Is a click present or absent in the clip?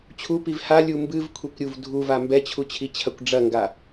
absent